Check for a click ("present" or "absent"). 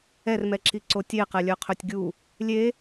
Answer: present